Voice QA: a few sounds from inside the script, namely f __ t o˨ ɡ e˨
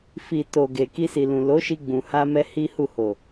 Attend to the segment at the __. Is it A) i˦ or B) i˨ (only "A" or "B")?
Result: B